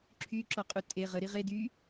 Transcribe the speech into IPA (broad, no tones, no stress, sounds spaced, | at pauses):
ǁʰ y ǁ ɔ qʼ u tʼ e ʁ ə ɾ i ʁ e d y